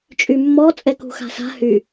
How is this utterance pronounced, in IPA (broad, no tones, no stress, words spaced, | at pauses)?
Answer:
t͡ʃʼymːɔ t͡sʼɛkṳxa̤sa̤ hy